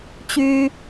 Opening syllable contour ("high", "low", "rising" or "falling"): high